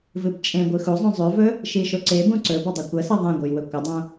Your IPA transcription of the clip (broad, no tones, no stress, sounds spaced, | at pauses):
v ɨ b t͡ʃʼ ẽ ɡʷ ɨ x u zˤ ũ zˤ ʉ v ɵ | ʃ i ʃ o ǀ e b ũ ǀ ɵ b ɐ dˤ ɵ kʷ ɐ s ɐ ðˤ ẽ ɡʷ ɨ j w ɵ kʷ ɐ dˤ õ